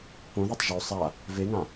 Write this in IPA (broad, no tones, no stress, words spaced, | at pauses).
põðetˤ ʒo sˤa | veŋã